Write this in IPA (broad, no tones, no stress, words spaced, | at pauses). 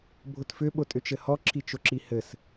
bʱʊtfʏ ɓʊtʼʏt͡ʃɘhɔ ǁʰit͡ʃʊǁihɘs